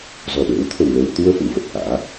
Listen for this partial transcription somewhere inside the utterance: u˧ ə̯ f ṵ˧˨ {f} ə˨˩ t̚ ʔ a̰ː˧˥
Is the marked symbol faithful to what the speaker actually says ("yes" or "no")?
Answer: no